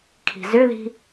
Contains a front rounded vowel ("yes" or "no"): yes